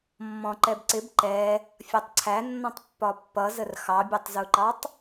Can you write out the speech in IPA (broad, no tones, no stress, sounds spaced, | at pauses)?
mː ɔ̃ ǃ ɛ b ǀ ɪ b ǃ ɛ | fʲ ɒ tˤ ǀʰ æ nː ɔ̃ tˤ pː ɒ pː ʌ z ə r x ɑ bʲ ɛ tˤ z u ǃ ɑ tˤ